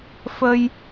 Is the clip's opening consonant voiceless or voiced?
voiceless